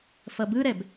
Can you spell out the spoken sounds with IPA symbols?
f ʌ b ɯ ɾ ɛ b

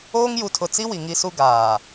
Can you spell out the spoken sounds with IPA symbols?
oː˦ ŋ j u˨ tʰ ʊ˨ t͡s i˦ w i˨ ŋ i˦ s u˦ ɡ aː˨

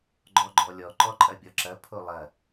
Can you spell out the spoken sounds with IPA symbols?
ɡ͡ǃ ɔ ɡ͡ǃ ɔ lʲ ɔ ǃ ɔ ǃʼ ɐ bʲ ɔ ǁ ɐ pʰ o lˠ ɐ

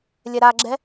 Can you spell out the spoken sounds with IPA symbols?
lʲ ɛ ɾ a ɡ͡ǁ ɛ

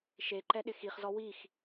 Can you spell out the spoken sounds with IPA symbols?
ʃ e ǃ ɛ ɗ ɪ x i χ z ɔ w i x

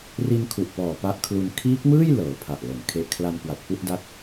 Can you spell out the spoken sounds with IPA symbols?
r i˧ n kʰ u˨˩ ʔ p ɔː˨˩ p a˦˥ ʔ kʰ l u˧ n kʰ iː˦˥ k̚ m ɯː˥˩ j l ɤː˨˩ pʰ a˨˩ ʔ l o˩˦ n kʰ e˨˩ ʔ kʰ l a˧ n k w a˨˩ t̚ p u˥˩ ʔ d a˦˥ t̚

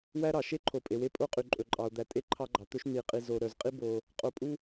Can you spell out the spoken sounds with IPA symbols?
w æ˦ ɾ ɑ˨ ʃ e˦ ǃʰ o˨ pʼ e˨ w e˦ pʼ o˦ qʼ y˨ ǃʼ ɵ˨ ǃʼ ɑ˨ o̯ d̪ æ˨ tʼ e˦ ǃʰ ɑ˦ ɡ͡ǃ ɑ˨ t̪ ɵ˦ ʃ n̪ i˨ qʼ i˨ z o˨ ɾ œ˨ z qʼ i˦ b o˨ | qʼ o˨˦ pʼ u˦

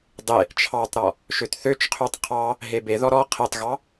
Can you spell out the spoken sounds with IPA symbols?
dˤ e | t͡ʃʰ ɑ tˤ ɾ ɔ | ʃ ø t θ ø t͡ʃ qʰ ø tˤ qʰ ɑ | ɦ e b e ð ɔ ɾ ɔ qʰ e tˤ ɣ ɑ

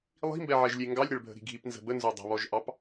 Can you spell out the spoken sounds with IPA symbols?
lˠ i̤ m b ɛ ʕ ɛ ʒ lʲ e ŋ ɡ ɑ lʲ ɾ ɛ ɭ bʱ ə̤ ɾ i̤ ɡʱ i p n z ə̤ b ə n z o dˤ ə̤ β ɔ ʒ ʔ ɑ p

